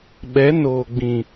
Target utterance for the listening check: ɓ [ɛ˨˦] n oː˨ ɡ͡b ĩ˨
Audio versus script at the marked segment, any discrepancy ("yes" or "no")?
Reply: no